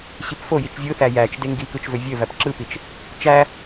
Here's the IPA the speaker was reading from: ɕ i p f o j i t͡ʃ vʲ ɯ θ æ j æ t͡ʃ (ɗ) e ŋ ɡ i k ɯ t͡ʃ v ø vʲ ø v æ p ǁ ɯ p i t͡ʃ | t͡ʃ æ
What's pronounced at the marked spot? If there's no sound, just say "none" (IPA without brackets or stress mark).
d